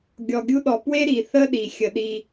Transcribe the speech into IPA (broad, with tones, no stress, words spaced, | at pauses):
ɡʲɔ˨ɡʲu˦ɗɔ˨ pwe˥ɾi˩ θə˥ɗi˩ xʲə˩ɗi˨